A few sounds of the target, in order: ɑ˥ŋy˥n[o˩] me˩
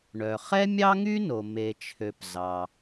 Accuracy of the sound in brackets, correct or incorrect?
correct